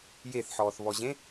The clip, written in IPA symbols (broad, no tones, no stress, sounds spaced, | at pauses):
j e θ ħ ɔː θ β ɔ ʑ ẽ